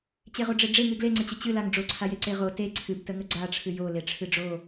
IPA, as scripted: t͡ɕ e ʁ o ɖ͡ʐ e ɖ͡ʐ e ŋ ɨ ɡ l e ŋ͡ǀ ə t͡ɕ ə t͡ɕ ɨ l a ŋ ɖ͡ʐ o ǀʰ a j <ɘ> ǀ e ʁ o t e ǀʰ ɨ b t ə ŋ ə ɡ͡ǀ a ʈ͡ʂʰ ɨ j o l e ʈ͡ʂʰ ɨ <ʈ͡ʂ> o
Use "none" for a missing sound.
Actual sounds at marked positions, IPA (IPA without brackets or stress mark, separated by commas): e, ɖ͡ʐ